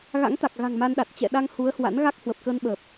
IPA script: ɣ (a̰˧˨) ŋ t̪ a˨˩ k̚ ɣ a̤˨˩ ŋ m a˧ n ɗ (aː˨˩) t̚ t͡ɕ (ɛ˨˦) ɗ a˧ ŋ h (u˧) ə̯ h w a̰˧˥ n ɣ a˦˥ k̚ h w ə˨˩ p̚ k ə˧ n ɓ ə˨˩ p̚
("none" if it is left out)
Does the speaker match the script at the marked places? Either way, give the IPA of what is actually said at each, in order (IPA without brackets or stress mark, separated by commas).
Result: a̰˧˥, a˨˩, ɛ̰˧˨, u˨˦